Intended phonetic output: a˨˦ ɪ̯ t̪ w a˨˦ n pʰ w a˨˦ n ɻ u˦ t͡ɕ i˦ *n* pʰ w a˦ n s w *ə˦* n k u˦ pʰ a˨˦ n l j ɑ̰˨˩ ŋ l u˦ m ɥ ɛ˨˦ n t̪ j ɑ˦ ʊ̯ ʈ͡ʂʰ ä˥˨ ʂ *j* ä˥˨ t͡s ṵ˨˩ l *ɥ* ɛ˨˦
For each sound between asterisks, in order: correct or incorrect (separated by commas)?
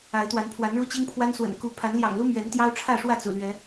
incorrect, incorrect, incorrect, correct